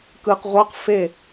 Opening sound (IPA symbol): k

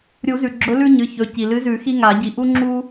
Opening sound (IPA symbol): ɾʲ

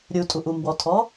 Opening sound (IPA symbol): ɾʲ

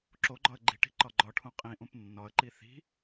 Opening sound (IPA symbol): ǁ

